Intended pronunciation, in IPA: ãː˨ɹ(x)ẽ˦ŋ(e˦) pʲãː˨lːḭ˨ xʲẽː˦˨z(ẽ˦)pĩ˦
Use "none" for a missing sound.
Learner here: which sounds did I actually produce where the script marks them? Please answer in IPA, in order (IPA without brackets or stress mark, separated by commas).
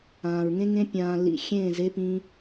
ŋ, ẽ˦, e˦